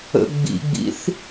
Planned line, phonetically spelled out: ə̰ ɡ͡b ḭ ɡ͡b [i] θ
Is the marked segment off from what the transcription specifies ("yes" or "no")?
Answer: yes